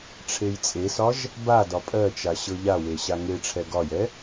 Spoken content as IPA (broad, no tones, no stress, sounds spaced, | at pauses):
ʈ͡ʂʰ e j t͡sʼ e s ɒ ʒ | b a d ɒ pʼ ɜ t͡ʃ a ɕ ɤ ʎ a w e ɕ a ŋ e ʈ͡ʂʰ ɛ ɡ ɒ j ɛ